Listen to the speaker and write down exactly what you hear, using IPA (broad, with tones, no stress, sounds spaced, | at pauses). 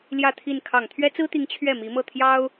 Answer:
l j ä˥˧ t̪ʰ i˥˩ n kʰ ɑ˨˩ ŋ t̪ʰ ɥ ɛ˥ t͡s ɹ̩˥ t̪ i˧˥ ŋ t͡ɕʰ ɥ ɛ˥˩ m i˧˥ m ɤ˥˩ t̪ʰ j ɑ˥ ʊ̯